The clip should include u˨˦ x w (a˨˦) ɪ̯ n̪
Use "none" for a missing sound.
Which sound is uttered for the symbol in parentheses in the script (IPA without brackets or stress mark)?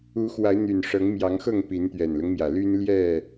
a˨˦